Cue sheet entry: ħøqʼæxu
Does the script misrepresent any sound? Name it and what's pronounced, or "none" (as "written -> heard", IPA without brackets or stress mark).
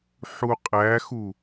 ø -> u